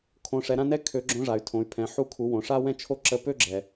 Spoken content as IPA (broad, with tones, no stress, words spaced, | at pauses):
kʰõ˩˧ ʂɛ˩˧ɾã˥nɛ˥ kʰø˩˧ ɡ͡ǁõ˧˥ʐa˩y̯tʰõ˩˧y̯pʰɛ̃˩˧ ħu˧kʰu˩˧wõ˩ʂa˥ wɛ̃˥t͡ʃʰo˥ ǁə˧˥pø˥ɡ͡ǁɛ˩